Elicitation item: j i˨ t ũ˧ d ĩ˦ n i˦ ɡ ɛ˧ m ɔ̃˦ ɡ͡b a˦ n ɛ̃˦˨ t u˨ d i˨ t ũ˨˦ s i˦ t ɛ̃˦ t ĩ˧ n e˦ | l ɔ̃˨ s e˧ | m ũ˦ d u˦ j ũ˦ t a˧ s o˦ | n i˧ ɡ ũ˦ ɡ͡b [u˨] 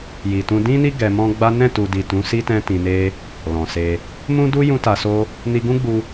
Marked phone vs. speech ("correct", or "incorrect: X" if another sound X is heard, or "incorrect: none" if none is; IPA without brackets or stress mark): incorrect: u˧